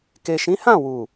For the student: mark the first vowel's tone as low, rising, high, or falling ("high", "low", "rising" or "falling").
low